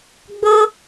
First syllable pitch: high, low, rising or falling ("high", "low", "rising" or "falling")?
high